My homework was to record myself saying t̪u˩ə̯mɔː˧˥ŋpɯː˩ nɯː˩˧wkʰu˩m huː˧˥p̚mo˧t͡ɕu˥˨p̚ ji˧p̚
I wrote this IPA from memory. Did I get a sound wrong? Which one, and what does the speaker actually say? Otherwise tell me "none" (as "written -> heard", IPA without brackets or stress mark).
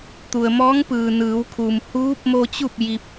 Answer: none